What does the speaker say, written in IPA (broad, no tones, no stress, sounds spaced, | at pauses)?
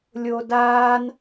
lʲ o d aː n